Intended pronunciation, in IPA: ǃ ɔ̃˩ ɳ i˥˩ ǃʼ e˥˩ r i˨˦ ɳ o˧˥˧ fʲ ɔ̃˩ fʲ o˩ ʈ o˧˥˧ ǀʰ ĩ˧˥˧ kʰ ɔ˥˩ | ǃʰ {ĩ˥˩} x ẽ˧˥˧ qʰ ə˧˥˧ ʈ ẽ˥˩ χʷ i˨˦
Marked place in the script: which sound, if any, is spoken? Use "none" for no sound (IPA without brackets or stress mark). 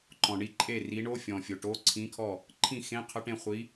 ĩ˥˩